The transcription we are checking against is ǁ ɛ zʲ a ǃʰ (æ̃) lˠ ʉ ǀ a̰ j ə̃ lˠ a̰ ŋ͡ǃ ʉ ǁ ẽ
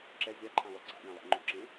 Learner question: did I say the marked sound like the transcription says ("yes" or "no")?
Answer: no